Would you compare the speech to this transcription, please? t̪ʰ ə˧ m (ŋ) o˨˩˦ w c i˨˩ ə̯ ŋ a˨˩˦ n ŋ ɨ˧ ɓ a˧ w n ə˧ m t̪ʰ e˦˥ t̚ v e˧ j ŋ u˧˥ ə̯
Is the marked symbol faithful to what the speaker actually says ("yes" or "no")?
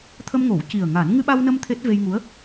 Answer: yes